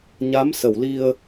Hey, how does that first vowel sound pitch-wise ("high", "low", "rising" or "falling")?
rising